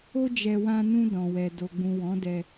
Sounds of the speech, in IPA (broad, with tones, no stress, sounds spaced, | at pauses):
o˦ d͡ʒ ɛ˧ w ã˧ n ũ˧ d ɔ̃˨ w ɛ˨ d o˨ ɡ͡b ũ˨ w ɔ̃˨˦ d ɛ˧